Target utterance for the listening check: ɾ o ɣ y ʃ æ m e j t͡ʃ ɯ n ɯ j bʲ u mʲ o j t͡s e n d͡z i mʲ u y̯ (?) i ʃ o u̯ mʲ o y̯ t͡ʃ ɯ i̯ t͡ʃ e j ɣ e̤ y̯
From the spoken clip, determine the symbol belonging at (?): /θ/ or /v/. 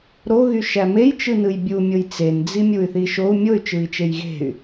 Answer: θ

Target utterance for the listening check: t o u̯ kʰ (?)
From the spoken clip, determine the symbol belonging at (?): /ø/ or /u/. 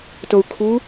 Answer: u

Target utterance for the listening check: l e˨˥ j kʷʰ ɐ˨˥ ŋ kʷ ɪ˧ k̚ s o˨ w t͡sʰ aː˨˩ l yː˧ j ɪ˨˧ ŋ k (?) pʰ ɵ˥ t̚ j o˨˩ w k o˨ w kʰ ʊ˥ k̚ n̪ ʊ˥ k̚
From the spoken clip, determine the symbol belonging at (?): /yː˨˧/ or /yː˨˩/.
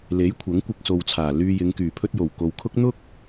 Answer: yː˨˩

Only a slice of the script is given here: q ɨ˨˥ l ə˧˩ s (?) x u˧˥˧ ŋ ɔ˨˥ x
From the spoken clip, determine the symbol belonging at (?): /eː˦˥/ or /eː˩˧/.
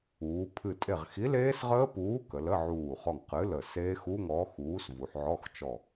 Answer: eː˦˥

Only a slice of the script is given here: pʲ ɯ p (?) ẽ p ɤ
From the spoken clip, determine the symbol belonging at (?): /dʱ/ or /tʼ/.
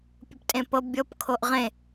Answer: tʼ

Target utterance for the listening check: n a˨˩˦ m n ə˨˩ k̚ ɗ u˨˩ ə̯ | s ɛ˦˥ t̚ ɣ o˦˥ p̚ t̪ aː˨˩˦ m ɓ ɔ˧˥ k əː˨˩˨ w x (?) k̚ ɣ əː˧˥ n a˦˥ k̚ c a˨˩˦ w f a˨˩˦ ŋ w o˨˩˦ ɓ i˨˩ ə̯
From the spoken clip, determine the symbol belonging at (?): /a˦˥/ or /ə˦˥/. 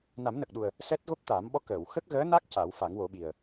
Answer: ə˦˥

